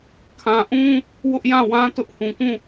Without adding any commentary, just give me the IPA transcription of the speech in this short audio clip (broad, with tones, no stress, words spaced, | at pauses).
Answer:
kʰã˨ʔũ˦ | wʊ˦ʔjã˦˨ wã˦ tʊ˦ʔhũ˨kũ˦˨